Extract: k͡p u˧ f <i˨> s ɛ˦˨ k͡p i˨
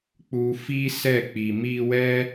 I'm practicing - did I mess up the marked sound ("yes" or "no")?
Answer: yes